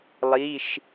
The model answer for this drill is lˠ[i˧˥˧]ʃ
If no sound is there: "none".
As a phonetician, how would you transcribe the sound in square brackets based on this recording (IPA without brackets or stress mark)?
i˧˥˧